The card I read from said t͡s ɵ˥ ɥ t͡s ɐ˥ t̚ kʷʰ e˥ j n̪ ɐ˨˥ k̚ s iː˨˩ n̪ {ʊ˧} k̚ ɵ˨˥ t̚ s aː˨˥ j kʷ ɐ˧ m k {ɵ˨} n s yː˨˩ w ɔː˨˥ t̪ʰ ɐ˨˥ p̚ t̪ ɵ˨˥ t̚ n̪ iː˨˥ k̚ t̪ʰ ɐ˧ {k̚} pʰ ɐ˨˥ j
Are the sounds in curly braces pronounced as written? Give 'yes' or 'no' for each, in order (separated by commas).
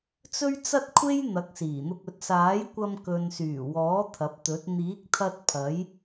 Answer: yes, yes, no